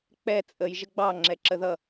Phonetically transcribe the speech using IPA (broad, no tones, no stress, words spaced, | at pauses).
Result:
k͡pɛ t͡sʼəj ʒəɡ͡bɑ ŋ͡ǁɛǁəðʌ